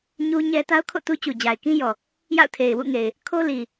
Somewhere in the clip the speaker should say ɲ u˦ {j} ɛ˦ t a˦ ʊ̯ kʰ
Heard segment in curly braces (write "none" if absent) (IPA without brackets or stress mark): ɲ